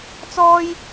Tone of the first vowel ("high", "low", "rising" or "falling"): high